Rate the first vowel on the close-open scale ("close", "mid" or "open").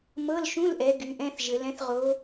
mid